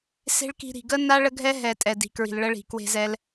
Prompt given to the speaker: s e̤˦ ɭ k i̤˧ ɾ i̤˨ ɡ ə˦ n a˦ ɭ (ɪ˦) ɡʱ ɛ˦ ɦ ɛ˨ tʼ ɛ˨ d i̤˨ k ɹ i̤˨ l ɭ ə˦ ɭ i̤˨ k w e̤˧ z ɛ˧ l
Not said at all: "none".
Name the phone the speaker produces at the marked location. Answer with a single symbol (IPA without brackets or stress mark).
ə˦